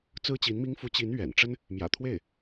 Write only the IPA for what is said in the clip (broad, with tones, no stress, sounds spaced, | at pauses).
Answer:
t͡s ɹ̩˥ t͡ɕ i˧˥ n m i˥ ŋ f u˧˥ t͡ɕ i˧˥ n ɥ ɛ̰˨˩ n ʈ͡ʂ ə˥ n | m j ä̰˨˩ t̪ʰ w e˥˩ ɪ̯